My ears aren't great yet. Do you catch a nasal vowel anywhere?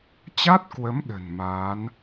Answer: no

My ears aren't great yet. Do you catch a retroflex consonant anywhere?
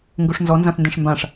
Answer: yes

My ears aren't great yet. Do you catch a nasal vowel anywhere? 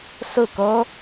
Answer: no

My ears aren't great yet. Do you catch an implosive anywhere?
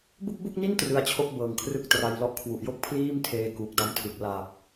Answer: no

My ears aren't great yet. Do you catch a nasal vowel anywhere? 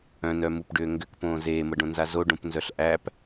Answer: yes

